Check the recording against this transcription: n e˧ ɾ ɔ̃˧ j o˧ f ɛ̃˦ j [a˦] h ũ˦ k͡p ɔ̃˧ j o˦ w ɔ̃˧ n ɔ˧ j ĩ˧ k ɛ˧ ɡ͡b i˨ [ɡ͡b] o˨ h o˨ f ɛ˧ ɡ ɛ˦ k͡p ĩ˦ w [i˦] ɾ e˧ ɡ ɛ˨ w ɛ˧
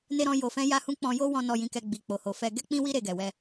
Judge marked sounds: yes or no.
yes, no, yes

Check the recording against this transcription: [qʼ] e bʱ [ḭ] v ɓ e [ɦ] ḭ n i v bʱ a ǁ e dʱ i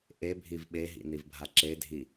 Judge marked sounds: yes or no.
no, no, yes

